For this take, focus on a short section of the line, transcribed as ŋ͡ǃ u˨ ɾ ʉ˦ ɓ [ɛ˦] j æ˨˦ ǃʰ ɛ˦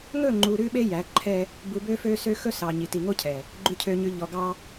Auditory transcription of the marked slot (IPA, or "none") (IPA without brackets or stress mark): e˦